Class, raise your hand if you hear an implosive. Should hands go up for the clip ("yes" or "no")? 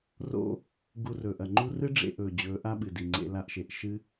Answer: yes